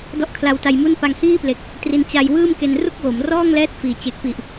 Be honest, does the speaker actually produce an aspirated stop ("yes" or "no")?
yes